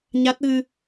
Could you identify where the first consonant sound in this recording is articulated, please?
palatal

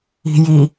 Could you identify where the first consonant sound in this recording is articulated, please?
palatal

